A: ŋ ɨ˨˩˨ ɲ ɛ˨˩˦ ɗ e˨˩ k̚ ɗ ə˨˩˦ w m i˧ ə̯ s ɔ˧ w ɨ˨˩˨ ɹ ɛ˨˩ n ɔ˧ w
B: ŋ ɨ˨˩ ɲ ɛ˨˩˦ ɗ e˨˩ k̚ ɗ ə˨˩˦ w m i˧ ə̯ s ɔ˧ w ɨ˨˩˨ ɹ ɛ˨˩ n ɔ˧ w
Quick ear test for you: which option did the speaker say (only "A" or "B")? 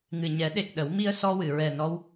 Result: B